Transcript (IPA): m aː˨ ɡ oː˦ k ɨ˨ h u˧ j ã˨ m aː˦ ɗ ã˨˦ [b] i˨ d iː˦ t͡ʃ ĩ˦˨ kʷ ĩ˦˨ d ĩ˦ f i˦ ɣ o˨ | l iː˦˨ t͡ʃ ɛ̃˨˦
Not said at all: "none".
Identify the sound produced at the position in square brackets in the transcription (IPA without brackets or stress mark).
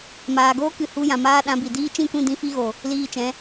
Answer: b